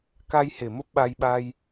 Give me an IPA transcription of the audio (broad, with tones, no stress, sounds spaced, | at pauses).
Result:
k a˧ j h e˨˩ m ə˦˥ p̚ ɓ a˧ j ɓ a˧ j